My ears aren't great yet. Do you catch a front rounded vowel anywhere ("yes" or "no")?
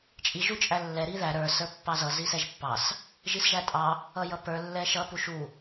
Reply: no